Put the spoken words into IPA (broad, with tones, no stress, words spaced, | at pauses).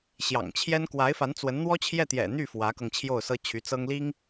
ɕjɑ̰˨˩ŋt͡ɕʰjɛ˥n kwa˧˥ɪ̯fa˧˥nt͡swə˧˥n n̪wɔ˥t͡ɕʰjɛ˥˩ t̪jɛ̰˨˩n̪y˥˩ fwä˧˥kɤ˧ŋt͡ɕʰjo˥˩ʊ̯sɤ˥ t͡ɕʰy˧˥t͡sɤ˥ŋli˥ŋ